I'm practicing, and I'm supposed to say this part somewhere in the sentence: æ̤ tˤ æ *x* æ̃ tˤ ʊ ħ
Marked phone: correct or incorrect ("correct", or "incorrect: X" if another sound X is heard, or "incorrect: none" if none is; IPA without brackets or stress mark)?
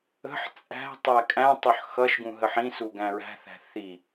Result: incorrect: kʼ